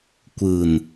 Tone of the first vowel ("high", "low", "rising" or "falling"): low